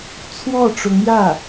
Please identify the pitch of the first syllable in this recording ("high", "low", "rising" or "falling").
falling